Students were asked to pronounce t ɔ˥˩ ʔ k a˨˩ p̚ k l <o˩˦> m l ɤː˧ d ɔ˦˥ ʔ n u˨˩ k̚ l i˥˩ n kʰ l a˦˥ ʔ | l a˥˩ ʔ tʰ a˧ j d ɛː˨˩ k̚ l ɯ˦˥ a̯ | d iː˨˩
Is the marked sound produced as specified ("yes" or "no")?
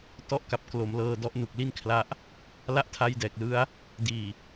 yes